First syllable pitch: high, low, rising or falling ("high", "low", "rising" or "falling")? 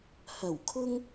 low